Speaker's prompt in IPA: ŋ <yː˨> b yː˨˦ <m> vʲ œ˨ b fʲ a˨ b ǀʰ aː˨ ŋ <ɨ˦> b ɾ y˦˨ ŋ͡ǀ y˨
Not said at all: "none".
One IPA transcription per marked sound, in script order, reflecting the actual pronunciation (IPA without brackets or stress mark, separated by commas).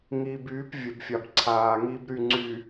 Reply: iː˨, p, i˦